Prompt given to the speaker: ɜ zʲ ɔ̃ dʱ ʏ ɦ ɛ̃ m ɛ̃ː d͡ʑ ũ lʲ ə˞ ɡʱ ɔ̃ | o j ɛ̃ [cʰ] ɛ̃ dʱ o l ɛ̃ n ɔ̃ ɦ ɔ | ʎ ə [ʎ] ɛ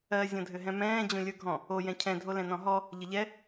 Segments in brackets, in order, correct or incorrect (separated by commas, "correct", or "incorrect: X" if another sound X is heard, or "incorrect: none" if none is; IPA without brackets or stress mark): correct, correct